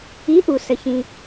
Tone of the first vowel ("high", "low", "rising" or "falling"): rising